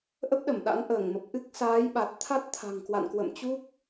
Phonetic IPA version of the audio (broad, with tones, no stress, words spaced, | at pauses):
ʔə˦˥p̚ɗə˧˩mɗa̰˧˥n ʔəː˧˩ŋmə˨˩p̚ ʔɨ˦˥k̚ saː˨˦jɓa˨˩t̚ t̪ʰa˦˥t̚t̪ʰa̤˨˩ŋkwa̰˧˨nkwə̰˧˨m t͡ɕu˦˥k̚